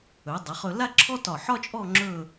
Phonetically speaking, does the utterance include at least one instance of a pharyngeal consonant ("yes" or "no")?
yes